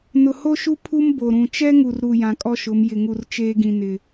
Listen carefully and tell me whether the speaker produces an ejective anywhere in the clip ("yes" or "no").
yes